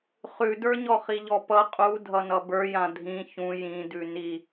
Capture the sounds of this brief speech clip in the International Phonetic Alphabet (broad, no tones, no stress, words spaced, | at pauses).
χʉdə˞ɲɔ χiʎɔpʌ qʼu dʱʌnʌbə˞ jãdʱĩ çũ jĩdʉ ni